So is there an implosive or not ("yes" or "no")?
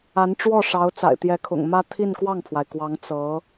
no